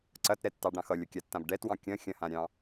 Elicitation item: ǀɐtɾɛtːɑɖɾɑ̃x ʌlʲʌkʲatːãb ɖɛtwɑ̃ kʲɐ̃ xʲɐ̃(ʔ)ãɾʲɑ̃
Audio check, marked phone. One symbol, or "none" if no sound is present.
h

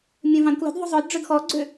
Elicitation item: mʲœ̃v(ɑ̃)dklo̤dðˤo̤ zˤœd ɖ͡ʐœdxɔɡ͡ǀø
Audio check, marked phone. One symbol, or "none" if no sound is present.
ɑ̃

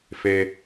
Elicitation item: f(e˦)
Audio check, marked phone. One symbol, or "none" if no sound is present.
e˦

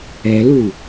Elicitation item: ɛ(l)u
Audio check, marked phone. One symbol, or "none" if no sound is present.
l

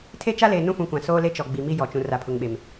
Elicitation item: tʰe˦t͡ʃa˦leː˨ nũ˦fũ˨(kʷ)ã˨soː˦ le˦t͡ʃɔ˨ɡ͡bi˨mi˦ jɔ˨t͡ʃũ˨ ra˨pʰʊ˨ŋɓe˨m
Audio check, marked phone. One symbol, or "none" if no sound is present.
kʷ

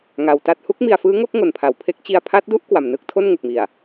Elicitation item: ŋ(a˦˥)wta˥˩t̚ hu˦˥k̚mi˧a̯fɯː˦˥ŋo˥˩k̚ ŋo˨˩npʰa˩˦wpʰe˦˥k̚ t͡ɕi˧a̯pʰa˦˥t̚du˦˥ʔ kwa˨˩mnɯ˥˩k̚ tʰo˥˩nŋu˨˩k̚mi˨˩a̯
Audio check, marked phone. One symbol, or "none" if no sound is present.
a˧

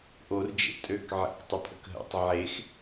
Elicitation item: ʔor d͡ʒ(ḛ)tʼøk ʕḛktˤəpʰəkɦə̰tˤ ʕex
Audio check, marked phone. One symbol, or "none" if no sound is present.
ḛ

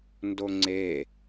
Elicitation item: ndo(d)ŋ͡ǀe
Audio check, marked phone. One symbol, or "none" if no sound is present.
none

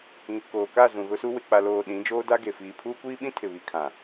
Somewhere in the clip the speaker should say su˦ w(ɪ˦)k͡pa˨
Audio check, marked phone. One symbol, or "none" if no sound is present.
ɪ˨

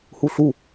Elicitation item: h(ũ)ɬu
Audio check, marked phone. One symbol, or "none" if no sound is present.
u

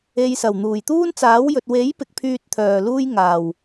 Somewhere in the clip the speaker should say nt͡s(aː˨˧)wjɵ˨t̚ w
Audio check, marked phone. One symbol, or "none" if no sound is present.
aː˨˥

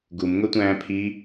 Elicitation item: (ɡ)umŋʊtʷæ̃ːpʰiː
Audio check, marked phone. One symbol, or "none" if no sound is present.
ɡ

